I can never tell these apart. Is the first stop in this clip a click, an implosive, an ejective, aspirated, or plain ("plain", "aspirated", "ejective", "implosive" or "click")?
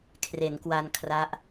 aspirated